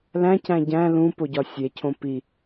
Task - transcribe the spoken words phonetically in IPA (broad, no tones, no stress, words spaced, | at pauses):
læ̃cæ̃ ɟæ̃ lũpoɟɒ sʲecʰõ pi